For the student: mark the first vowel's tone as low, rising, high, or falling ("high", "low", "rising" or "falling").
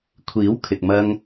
rising